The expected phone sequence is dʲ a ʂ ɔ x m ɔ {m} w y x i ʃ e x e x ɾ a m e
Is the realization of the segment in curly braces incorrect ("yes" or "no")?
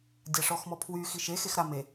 yes